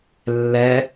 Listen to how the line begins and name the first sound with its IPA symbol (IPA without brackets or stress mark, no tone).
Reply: lː